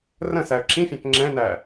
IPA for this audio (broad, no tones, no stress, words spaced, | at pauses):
rə̃ sæə̯ǁĩfʲæ̃k ŋ͡ǁɛ̃næ